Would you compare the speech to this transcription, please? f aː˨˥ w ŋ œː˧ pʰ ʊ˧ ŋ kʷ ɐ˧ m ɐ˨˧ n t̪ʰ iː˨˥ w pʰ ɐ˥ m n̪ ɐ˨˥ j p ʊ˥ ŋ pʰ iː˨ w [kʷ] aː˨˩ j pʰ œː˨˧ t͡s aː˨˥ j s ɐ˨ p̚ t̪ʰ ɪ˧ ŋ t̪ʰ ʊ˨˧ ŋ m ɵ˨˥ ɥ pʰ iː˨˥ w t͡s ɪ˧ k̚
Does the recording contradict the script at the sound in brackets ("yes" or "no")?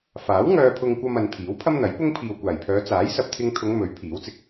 no